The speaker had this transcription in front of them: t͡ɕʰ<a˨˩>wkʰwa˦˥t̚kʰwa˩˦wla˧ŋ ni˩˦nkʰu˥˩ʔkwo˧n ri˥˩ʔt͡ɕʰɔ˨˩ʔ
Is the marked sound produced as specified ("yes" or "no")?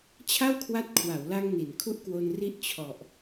no